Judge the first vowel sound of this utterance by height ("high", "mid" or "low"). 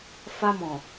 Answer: low